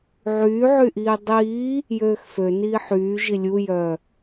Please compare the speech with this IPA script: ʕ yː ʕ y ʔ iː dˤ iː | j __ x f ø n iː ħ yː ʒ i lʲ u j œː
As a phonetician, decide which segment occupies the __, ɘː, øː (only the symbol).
øː